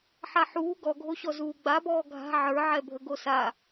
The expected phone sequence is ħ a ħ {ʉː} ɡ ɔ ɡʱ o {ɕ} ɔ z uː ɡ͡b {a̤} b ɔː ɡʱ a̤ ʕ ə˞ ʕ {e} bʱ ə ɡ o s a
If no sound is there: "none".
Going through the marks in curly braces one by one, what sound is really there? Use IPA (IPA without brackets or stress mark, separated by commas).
uː, ɕ, a, ɛ